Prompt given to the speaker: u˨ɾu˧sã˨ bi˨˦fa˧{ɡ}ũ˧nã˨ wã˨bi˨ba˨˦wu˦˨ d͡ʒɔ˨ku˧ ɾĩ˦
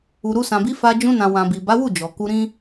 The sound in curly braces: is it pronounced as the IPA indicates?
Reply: no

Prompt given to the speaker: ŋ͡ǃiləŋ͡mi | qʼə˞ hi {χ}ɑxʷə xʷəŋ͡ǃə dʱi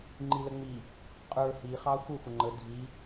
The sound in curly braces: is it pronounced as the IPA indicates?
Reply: yes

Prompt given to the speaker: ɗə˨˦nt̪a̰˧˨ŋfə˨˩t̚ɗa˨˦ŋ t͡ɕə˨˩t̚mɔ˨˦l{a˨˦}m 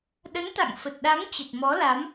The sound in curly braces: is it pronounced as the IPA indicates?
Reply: yes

